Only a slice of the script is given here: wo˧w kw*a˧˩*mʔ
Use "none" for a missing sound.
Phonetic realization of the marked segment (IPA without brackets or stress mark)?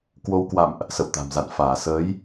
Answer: a̰˧˨